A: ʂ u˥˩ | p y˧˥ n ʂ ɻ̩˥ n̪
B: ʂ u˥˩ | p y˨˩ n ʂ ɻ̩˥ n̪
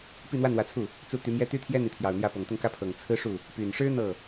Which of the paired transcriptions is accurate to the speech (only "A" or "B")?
B